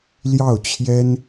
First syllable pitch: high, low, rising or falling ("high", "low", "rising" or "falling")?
falling